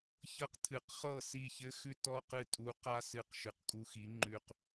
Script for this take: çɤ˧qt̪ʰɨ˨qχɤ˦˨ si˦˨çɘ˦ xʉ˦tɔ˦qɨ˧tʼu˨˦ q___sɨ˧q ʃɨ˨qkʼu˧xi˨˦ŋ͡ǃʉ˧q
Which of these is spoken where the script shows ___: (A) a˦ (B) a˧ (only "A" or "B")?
A